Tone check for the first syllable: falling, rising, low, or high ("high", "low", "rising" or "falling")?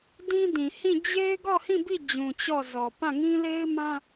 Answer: high